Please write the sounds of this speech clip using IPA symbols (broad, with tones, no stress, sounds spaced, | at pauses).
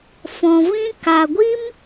f ɔ̃˧ v ĩ˦ k a˨ ɡʷ i˦ m